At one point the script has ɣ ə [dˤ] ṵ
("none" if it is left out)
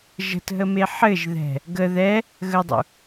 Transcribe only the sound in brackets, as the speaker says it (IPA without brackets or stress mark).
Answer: dˤ